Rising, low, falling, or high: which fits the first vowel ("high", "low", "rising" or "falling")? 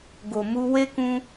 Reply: low